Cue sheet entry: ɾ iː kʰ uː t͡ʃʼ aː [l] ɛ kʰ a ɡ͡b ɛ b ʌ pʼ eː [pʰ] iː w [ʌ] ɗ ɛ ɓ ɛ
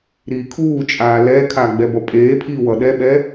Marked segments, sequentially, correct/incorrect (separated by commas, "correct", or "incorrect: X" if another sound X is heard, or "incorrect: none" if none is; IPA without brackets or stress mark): correct, correct, correct